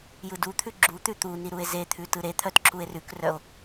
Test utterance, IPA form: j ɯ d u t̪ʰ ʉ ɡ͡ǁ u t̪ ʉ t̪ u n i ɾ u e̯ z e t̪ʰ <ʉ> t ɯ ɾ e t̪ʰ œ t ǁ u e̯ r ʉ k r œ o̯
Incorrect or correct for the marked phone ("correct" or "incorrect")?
correct